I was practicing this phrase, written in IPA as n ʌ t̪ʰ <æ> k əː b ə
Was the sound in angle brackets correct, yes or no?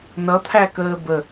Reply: yes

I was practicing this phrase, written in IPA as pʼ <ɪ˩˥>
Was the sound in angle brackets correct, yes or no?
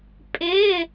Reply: no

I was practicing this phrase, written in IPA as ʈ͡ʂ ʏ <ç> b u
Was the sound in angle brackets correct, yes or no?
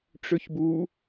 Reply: yes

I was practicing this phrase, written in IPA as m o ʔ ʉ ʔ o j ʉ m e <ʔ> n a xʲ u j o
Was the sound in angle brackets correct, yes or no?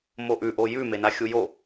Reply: no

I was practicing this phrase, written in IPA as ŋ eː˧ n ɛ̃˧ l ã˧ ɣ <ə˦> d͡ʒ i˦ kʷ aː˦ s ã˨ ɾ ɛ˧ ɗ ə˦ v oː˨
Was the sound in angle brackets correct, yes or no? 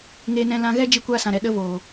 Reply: no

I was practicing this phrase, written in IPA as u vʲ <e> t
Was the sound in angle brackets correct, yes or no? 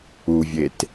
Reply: yes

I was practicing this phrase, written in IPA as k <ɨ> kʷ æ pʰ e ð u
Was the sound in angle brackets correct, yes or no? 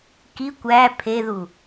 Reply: no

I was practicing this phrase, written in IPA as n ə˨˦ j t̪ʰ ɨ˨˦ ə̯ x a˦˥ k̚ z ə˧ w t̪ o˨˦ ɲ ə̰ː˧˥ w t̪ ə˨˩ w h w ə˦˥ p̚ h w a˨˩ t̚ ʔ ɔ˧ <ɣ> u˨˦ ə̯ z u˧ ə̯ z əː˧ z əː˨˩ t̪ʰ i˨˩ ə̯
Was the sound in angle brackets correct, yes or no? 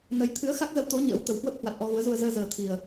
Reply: yes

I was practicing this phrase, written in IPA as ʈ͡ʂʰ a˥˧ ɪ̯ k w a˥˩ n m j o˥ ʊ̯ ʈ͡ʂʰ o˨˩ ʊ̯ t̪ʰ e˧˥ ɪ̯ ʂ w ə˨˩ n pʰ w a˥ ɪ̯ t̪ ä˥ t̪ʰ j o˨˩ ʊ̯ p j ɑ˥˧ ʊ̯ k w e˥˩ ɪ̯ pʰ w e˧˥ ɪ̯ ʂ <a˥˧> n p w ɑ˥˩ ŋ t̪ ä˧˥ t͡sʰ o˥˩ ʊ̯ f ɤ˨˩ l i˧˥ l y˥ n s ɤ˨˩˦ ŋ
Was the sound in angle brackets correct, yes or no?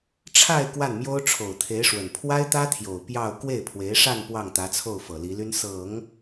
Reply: yes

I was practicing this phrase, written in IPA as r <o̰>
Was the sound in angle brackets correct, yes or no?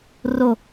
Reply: no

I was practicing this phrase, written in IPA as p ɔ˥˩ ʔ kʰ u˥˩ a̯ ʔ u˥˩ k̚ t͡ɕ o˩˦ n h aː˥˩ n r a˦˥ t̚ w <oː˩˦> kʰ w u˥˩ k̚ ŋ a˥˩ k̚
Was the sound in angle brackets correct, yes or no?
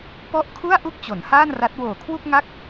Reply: no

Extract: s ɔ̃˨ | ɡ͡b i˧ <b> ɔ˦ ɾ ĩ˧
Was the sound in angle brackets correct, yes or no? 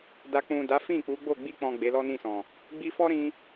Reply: no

